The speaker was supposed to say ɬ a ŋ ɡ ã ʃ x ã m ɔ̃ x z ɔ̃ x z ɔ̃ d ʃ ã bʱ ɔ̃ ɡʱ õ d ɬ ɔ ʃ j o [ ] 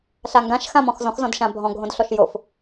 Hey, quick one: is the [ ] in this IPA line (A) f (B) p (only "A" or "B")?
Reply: A